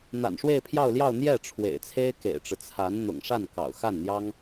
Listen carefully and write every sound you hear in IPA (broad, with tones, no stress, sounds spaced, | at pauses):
n̪ a̰˨˩ n ʂ w e˥˧ ɪ̯ pʰ j ɑ˥˧ ʊ̯ l j ɑ˥˧ ʊ̯ n̪ j ɛ˥˩ ʈ͡ʂʰ w ḛ˨˩ ɪ̯ t͡sʰ e˥ ɪ̯ k ḛ˨˩ ɪ̯ ʈ͡ʂ ɻ̩˦ t͡sʰ a˧˥ n n̪ ʊ̰˨˩ ŋ ʂ a˥˩ n k ɑ̰˨˩ ʊ̯ x a˥˩ n n̪ j ɑ˥ ŋ